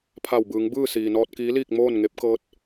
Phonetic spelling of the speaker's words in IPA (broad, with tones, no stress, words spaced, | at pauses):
pʰa˧˩wbɯː˩˧ŋ bɯː˥˨ siː˩nɔː˧t̚kiː˧˥liː˥˨k̚ moː˥˨nŋe˧˥p̚ kɤː˧˥t̚